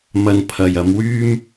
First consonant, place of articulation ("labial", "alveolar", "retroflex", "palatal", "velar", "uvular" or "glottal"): labial